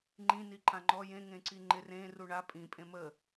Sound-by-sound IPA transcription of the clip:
ŋ͡ǃ ĩ n i ǃ ã ŋ͡ǃ ɔ j ẽ ŋ ẽ ǀ i ŋ͡ǃ ɪ r ẽ r u ɳ a pʼ ĩ pʼ ẽ m ə

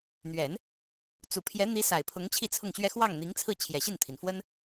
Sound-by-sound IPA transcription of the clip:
n̪ ɥ ɛ˨˩˦ n | t͡s u˨˩ pʰ j ɛ˧˥ n̪ i˧˥ s a˨˩ ɪ̯ pʰ ʊ˧˥ ŋ t͡ɕʰ i˥˧ t͡sʰ ʊ˥˩ ŋ ɕ ɥ ɛ˥ x w ɑ˥˩ ŋ n̪ i˧˥ ŋ t͡sʰ ɹ̩˥˩ t͡ɕʰ j ɛ˨˩ ɕ i˥˩ n t̪ʰ i˩ n f w ə˥ n

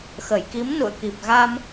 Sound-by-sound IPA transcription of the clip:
x ə˧˩ j k i˨˦ m n ṵ˧˨ ə̯ k i˨˩ p̚ ɣ a˧ m

